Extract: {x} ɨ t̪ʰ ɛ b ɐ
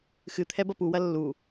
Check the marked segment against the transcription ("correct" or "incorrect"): correct